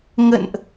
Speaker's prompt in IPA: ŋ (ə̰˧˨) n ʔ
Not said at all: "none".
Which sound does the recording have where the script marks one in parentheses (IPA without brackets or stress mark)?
ə̰˧˨